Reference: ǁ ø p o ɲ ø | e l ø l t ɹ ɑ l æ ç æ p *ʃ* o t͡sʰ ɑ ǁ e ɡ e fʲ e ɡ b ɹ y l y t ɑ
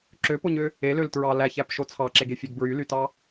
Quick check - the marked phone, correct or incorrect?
correct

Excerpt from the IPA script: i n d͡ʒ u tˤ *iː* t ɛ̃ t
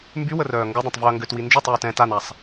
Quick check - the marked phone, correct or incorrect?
incorrect: yː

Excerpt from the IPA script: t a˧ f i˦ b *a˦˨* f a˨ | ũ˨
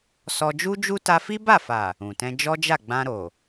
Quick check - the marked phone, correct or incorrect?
correct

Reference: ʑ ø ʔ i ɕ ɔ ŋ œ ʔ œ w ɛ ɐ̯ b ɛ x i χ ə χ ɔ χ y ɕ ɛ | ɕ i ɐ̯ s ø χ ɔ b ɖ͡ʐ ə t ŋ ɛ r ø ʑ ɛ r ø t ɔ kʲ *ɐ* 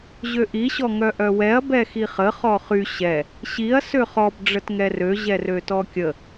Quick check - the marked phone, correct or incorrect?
incorrect: ə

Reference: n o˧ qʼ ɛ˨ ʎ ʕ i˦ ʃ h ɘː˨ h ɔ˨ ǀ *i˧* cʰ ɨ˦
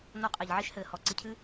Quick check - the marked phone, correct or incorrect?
correct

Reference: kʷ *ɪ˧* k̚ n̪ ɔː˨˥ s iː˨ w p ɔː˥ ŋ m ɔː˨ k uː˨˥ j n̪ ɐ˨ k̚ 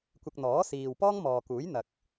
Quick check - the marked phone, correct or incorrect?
correct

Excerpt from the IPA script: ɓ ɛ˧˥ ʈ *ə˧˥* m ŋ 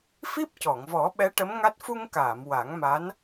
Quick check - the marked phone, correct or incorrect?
correct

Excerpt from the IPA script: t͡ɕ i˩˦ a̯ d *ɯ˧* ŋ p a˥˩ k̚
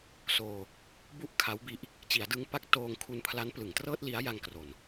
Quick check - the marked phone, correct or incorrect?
correct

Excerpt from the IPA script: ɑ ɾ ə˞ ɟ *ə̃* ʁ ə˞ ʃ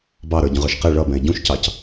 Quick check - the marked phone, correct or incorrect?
correct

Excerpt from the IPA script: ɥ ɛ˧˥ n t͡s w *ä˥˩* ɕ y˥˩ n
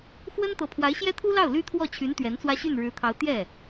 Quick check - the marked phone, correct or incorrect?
incorrect: ä˥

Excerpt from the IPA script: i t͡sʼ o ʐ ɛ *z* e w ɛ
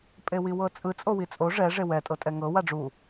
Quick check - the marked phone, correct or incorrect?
incorrect: ʐ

